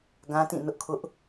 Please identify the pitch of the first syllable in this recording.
high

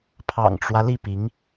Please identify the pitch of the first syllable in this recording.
low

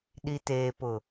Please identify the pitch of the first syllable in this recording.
low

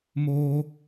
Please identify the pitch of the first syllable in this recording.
high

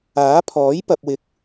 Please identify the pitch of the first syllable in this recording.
rising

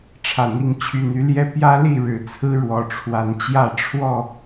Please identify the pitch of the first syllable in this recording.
low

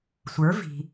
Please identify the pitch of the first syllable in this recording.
rising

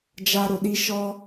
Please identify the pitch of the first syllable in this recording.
high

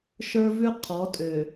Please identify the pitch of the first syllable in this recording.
high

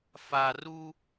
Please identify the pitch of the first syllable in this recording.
low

